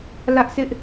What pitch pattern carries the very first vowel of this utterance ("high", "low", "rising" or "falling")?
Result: high